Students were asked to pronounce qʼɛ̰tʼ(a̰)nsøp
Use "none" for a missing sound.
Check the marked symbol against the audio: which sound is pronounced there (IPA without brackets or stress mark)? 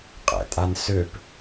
a